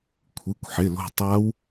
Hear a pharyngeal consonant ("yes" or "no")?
yes